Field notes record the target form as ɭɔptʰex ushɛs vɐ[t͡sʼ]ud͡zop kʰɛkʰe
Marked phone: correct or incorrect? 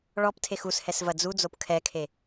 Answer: incorrect